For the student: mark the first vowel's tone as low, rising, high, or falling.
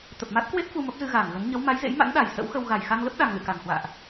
low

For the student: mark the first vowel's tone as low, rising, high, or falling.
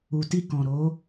low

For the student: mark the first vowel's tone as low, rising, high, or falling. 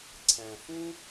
low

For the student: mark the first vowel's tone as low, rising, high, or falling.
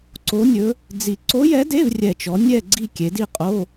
rising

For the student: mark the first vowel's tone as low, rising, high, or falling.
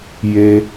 high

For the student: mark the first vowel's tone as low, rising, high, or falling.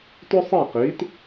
high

